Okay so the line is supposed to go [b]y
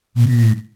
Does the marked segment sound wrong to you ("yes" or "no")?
no